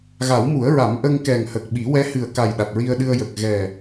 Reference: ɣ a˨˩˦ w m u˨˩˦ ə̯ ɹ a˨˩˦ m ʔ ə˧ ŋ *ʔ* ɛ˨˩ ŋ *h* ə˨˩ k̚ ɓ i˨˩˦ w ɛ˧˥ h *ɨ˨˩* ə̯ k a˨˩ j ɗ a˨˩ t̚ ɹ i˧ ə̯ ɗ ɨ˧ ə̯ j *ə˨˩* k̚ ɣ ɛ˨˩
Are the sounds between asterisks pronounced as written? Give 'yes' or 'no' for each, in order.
no, yes, yes, yes

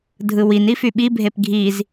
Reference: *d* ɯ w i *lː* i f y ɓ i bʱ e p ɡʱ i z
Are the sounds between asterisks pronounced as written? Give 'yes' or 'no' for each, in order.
no, no

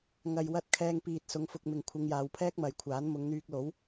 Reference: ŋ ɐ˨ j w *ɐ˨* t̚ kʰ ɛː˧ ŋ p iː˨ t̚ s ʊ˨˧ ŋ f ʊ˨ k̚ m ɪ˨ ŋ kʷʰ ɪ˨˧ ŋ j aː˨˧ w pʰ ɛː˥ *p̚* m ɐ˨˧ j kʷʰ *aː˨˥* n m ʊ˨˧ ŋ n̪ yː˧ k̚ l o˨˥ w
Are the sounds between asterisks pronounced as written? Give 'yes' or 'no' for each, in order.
no, no, yes

